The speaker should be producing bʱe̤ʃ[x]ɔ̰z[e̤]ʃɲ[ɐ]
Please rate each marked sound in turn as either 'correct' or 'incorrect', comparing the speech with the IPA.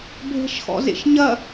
correct, incorrect, correct

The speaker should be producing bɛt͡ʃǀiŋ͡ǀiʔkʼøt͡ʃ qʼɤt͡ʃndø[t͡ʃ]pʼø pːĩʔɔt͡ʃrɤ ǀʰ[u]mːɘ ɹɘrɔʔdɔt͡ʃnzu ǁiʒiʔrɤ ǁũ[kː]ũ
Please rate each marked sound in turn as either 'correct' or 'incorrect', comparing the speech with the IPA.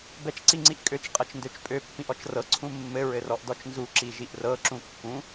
correct, incorrect, correct

